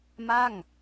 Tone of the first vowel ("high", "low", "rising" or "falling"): falling